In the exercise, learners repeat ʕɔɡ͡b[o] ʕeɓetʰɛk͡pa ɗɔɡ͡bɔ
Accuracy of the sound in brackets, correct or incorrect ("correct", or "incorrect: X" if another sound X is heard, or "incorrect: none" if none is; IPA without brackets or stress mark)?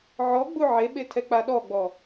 incorrect: u